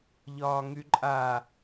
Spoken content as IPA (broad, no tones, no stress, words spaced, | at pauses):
ʎɒːŋyǃʼa